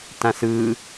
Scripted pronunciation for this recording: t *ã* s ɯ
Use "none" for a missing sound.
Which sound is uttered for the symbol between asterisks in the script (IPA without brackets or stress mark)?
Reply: ã